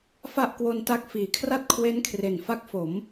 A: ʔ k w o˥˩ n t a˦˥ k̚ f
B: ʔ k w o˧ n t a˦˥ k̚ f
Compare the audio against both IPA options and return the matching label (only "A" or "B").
B